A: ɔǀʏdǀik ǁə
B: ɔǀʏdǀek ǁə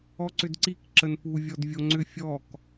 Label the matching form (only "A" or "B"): A